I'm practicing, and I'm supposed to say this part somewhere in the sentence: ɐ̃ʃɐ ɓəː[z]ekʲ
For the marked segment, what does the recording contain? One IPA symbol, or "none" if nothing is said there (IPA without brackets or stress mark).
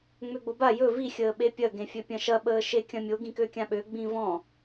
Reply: ʃ